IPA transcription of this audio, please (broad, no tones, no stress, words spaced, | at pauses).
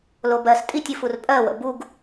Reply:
lobɜs tʼitʲɨfur pʼɜwə̰ buɡ